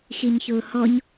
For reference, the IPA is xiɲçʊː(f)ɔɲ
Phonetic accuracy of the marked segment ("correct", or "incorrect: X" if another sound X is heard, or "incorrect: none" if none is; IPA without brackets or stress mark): incorrect: h